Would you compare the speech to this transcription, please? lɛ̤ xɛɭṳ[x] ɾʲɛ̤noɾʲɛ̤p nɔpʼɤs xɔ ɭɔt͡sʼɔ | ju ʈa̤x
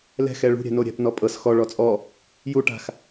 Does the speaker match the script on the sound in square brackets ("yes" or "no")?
no